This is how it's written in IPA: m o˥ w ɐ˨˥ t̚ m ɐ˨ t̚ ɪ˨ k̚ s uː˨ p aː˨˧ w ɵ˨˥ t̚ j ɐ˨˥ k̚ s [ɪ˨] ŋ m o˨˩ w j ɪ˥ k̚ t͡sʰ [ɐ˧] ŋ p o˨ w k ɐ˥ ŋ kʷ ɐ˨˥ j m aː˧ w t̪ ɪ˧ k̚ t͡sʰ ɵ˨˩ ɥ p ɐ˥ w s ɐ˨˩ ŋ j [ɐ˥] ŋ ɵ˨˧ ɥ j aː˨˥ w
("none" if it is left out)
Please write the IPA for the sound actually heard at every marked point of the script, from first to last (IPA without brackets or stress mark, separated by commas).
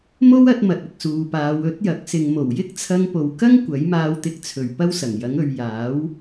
ɪ˨, ɐ˧, ɐ˨˥